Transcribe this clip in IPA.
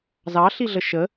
zɑɬiɮə ʃə

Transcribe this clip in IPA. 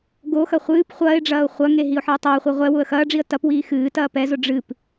ɡoxɐ χʷɨːp χʷɐːɪ̯ɖ͡ʐɐːʊ̯ χʷɐŋe ɦiʊ̯ħɨːtˤɐːχʷi ʁʷɛ wʊə̯xɐːɖ͡ʐiə̯ tɐpwiː xɨː tɐːpɛzʊ ɖ͡ʐɨp

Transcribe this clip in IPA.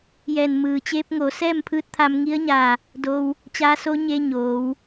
jɛː˧˩nmɯː˩ t͡ɕeː˧p̚ŋo˩˧ sɛː˥˨mpʰɯː˧˥t̚t̪ʰa˧m ŋi˧˥ə̯ɲaː˧˩ | do˧w | t͡ɕaː˧˥so˧˥ɲeː˧ ɲoː˩˧w

